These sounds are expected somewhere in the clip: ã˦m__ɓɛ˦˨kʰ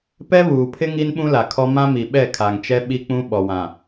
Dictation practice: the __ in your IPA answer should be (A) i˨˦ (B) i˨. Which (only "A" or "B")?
B